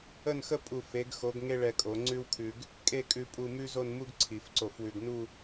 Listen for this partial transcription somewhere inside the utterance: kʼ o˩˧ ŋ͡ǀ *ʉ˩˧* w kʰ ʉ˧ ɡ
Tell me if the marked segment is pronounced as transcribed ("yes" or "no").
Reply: no